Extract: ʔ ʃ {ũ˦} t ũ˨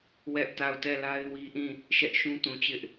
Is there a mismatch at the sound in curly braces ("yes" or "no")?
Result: no